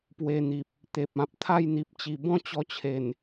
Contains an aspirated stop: yes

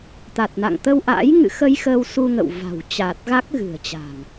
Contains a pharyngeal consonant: no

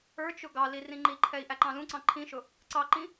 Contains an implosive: no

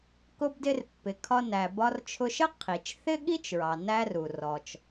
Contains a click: no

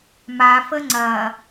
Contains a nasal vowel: no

